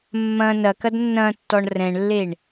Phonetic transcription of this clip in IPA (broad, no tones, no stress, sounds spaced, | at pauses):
mː ɐ̃ n ɐ k ɐ d nː ɐ̃ tː ɔ ɳ r ɛ̃ ɳ lː e ɳ